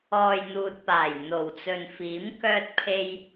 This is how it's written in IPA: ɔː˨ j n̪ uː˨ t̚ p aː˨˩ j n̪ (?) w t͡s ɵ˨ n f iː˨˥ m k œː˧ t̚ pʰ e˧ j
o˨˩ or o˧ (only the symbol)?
o˨˩